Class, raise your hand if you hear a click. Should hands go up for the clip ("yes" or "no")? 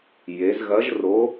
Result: no